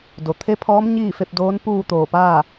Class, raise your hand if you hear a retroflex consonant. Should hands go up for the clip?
no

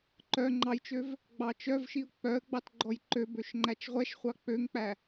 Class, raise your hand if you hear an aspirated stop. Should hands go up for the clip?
no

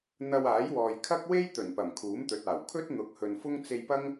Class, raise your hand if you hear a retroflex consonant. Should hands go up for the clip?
no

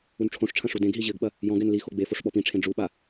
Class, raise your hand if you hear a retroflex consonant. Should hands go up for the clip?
yes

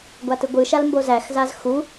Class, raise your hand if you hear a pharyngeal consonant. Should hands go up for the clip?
no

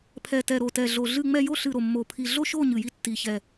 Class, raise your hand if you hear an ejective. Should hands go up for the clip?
no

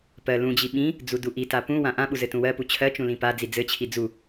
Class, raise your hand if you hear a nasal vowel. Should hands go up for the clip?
yes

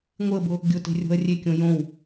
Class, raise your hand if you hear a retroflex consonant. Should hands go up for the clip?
no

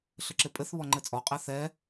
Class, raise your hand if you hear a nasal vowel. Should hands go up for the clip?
no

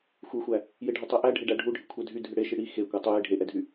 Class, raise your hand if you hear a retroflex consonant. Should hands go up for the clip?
yes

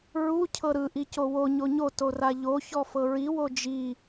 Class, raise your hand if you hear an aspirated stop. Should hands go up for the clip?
yes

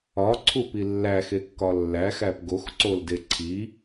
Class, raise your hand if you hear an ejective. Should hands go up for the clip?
no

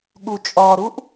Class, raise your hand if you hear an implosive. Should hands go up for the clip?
yes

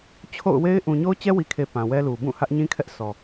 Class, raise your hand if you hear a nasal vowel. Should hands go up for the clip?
yes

